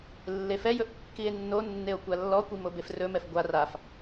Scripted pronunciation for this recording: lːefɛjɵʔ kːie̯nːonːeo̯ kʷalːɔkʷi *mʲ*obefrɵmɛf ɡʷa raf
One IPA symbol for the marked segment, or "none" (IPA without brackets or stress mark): m